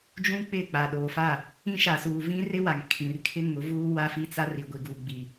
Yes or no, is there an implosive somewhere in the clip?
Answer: yes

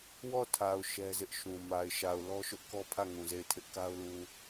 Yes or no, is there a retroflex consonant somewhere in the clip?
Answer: no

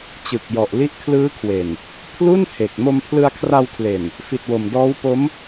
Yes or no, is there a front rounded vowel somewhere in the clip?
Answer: no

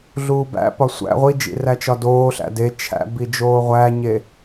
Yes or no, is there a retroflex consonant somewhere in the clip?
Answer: no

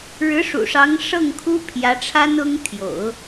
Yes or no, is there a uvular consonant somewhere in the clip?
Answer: no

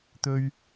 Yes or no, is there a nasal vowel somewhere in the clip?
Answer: no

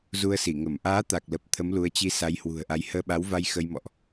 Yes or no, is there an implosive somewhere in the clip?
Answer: yes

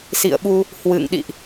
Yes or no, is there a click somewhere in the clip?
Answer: no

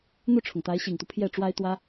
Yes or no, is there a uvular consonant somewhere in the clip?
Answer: no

